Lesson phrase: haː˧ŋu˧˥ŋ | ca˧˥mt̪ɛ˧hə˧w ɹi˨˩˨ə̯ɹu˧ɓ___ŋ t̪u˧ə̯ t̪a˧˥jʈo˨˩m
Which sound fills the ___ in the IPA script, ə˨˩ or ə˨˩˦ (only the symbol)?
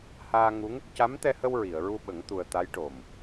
ə˨˩˦